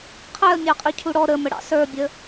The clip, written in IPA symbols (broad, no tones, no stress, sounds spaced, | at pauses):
qʰ ɛ ə̯ mʲ ɑ qʼ i cʰ u ɽ ɔ ɾ ə m ə ɽ ɑ̰ s ə˞ bʲ ə